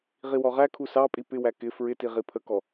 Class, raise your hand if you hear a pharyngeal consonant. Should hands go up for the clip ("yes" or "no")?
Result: no